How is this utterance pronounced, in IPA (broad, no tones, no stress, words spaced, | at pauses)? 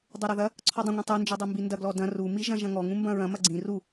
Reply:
dˤuɾɐðɐ | ǀʰɔdˤɐ̃ŋʷĩ tˤund͡ʒidˤe mbindɐ ɡlɔdɐ̃ rumi ʒɐ̃ʒɐ̃ŋɔŋũ mbɐ̃ɹɐ̃ mɐɡ͡ǀĩ ru